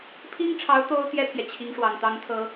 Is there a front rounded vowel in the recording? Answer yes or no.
no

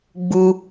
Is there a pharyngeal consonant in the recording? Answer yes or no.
no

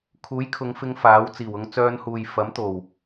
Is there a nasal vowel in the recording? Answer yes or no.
no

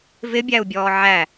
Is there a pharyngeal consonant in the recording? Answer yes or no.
yes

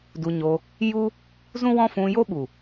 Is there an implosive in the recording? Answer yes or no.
yes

